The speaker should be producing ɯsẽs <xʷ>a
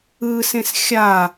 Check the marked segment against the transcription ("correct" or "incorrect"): incorrect